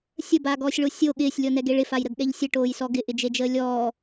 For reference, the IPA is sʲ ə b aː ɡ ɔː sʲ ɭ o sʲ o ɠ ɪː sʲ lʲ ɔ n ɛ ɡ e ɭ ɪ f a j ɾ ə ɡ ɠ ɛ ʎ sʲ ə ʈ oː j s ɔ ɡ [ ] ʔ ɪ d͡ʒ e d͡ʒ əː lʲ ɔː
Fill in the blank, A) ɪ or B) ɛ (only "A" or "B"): A